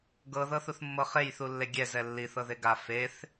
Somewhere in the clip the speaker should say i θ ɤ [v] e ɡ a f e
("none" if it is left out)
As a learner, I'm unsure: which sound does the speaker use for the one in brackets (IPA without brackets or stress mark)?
ð